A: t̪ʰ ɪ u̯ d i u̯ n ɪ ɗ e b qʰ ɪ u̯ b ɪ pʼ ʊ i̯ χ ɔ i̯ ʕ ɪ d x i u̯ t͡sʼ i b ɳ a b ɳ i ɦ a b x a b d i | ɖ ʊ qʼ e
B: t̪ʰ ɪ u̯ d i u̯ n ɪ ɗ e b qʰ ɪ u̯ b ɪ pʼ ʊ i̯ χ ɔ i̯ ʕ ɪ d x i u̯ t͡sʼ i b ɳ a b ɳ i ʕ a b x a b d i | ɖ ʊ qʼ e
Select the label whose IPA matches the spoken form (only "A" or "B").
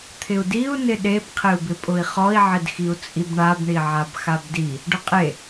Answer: B